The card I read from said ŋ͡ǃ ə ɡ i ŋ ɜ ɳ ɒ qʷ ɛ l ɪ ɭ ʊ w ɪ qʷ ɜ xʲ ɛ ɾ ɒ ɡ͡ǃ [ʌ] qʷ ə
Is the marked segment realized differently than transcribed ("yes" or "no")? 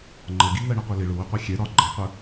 no